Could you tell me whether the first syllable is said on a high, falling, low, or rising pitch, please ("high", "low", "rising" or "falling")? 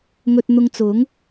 low